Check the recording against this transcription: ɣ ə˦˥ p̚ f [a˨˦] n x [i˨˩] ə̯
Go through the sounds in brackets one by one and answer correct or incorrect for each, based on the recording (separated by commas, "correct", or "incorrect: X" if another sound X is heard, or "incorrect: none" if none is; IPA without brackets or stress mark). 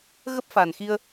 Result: incorrect: a˨˩, incorrect: i˧